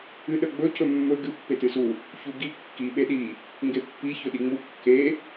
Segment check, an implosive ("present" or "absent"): present